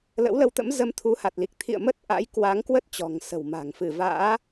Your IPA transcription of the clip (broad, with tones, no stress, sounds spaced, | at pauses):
l ə̰˧˥ w l ə˧ w t̪ ə̰˧˥ m z ə˧ m t̪ʰ u˨˦ h a˨˩ t̚ l i˨˩ k̚ t̪ʰ ḭ˧˨ ə̯ m ə˦˥ t̚ ʔ a̰˧˥ j k w a˨˦ ŋ k w ə˦˥ t̚ t͡ɕ ɔ̤˨˩ ŋ s ə̤˨˩ w m a̤˨˩ ŋ f ɨ˧˩ v a̰ː˧˥